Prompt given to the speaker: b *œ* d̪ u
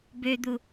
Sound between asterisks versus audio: incorrect: ø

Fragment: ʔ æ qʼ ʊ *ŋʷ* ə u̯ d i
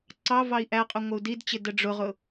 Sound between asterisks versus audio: correct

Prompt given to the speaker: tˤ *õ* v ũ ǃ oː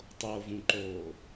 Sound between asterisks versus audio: incorrect: o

